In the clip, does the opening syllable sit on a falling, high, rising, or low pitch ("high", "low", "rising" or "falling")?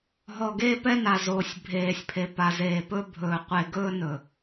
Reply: low